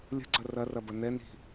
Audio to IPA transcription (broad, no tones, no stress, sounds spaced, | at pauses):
lʲ ə̤ ɡ͡ǀ ɐ r ɐ r ɐ b ɐ n ɛ n i̤